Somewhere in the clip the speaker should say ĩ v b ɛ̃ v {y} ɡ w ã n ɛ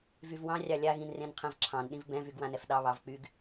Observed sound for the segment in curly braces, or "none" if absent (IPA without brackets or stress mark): y